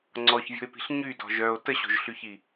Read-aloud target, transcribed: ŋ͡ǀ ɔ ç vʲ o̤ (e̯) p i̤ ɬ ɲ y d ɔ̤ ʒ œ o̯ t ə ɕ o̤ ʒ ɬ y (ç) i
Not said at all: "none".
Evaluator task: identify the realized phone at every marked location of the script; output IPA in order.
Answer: e̯, ç

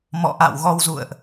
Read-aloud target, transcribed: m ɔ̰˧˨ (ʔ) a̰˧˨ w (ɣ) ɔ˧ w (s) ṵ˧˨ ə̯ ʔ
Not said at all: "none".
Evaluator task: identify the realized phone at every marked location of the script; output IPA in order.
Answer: ʔ, ɣ, z

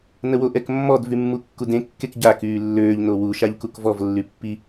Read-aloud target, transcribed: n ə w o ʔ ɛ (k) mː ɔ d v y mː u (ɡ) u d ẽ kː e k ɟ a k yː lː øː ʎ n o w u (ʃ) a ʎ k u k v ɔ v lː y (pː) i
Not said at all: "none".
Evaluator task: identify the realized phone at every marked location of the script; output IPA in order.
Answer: k, kː, ʃ, pː

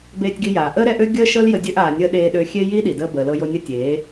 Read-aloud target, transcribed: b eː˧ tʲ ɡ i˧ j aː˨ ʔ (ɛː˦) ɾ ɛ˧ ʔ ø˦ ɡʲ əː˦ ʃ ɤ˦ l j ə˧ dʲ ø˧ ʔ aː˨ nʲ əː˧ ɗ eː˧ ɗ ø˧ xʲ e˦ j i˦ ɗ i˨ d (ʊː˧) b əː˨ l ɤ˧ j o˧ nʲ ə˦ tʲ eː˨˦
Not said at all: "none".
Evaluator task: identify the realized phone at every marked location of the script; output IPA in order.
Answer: əː˦, əː˧

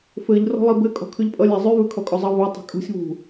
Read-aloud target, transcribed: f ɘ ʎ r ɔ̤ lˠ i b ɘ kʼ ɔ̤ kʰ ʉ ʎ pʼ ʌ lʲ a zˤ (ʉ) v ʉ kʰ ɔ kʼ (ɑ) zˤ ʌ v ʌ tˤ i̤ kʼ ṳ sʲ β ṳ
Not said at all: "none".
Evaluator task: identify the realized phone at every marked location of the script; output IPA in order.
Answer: ʉ, ɔ

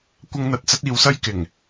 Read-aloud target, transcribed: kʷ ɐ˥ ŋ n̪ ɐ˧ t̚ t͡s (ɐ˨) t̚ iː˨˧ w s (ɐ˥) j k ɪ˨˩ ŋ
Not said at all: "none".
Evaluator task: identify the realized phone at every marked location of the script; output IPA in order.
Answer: ɐ˥, ɐ˥

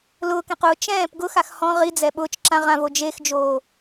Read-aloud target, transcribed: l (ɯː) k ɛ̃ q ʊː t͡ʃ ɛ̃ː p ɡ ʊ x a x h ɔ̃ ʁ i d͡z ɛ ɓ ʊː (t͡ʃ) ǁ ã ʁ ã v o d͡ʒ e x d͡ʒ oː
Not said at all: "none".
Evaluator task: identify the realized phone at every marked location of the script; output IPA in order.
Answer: ʊː, t͡ʃ

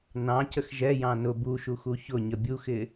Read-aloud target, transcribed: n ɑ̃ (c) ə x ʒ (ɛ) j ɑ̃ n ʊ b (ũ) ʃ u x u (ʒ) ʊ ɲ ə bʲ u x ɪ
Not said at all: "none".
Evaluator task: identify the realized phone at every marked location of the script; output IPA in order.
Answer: c, ɛ, u, ç

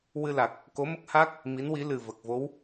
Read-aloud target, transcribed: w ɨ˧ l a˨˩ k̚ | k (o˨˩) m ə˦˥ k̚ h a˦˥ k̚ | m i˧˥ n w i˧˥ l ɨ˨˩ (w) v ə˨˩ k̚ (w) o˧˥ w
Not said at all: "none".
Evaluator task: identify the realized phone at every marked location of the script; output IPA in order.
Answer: o˧˥, none, v

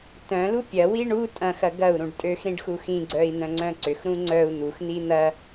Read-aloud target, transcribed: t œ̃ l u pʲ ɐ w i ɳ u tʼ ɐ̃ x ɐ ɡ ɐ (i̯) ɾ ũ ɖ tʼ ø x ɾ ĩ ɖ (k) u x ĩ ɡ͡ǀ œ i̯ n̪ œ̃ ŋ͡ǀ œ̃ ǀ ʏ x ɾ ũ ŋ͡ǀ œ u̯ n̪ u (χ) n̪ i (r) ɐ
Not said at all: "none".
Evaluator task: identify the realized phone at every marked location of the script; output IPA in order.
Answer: u̯, x, x, n̪

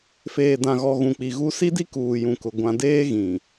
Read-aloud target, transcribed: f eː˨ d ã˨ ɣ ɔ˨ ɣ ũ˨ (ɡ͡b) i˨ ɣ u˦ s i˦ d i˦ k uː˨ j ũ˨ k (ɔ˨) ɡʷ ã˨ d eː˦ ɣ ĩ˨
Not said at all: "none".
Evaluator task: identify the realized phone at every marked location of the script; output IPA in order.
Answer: k͡p, ʊ˨

